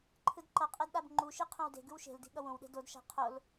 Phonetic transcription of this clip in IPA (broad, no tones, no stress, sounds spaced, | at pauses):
ǃʰ ɯ d ǃ ʌ qʼ e d ɗ a b ŋ͡ǃ u ʃ i qʰ õ w d e̤ ɡ ɯ w ʃ e̤ l d i̤ ɠ ʌ w õ w ɗ e̤ d o d ʃ a̤ qʰ o l